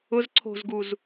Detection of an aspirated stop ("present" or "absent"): present